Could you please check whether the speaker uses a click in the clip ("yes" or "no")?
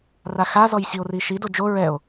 no